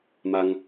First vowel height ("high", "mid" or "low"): low